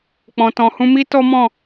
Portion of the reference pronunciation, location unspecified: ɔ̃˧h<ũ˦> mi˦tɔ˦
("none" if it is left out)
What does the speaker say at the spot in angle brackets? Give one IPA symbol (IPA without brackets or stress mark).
ũ˦